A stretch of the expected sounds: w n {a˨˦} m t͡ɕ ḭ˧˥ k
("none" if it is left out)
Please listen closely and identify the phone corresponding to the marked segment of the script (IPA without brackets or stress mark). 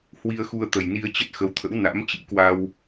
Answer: a̰˧˥